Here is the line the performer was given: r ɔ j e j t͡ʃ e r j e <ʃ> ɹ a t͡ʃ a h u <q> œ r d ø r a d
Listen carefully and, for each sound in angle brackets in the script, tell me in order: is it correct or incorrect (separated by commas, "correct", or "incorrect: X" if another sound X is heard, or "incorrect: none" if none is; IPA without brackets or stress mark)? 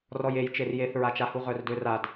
incorrect: θ, incorrect: ʁ